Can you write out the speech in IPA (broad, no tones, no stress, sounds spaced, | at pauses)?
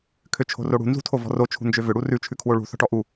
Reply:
kʰ ø t͡ʃʰ o̤ r o ɽ ṳ n z ṳ tʰ o v ɔ̤ r o t͡ʃʰ ṳ n d͡ʒ ø v ʏ ɽ u r ʉ t͡ʃʰ ʉ kʰ w o ɭ ṳ θ ɔ̤ ʈ ɔ ʔ u